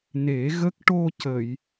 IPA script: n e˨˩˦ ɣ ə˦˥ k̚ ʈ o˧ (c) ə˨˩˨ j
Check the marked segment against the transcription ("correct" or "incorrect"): correct